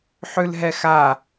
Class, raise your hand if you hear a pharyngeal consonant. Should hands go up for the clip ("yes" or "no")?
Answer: yes